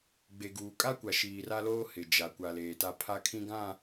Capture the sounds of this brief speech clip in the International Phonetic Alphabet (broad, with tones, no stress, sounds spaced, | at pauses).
ɡ͡b e˨ ɡ uː˨ kʼ a˦ kʷ a˨ ʃ iː˨ r a˦ l oː˦ h ɪ˨ d͡ʒ a˨ kʷ a˨ l eː˨ t a˦ pʰ a˦ kʰ ĩ˦ ɡ ã˦˨